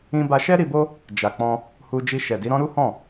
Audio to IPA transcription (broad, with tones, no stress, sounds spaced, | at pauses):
ĩ˧ b a˧ ʃ ɛ˦ ɾ i˧ b o˦ | d͡ʒ a˨ k͡p ɔ̃˧ | h u˧ d͡ʒ i˧ ʃ ɛ˨ d i˨˦ ɾ ɔ̃˦ ɾ u˦ h ɔ̃˦˨